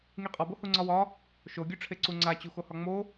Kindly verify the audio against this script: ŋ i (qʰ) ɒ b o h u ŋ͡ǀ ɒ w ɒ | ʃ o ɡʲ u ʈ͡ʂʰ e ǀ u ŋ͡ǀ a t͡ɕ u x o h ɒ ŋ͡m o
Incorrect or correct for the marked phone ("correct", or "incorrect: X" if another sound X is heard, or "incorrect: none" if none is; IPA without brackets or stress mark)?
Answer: incorrect: qʼ